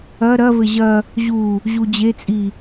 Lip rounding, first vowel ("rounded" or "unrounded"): unrounded